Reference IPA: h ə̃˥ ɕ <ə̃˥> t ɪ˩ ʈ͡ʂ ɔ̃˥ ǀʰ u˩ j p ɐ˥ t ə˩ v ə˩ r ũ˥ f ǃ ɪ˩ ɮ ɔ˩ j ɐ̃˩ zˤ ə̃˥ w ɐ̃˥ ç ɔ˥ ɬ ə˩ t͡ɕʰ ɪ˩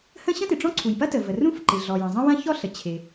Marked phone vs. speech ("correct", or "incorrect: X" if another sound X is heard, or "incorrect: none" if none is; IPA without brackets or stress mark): correct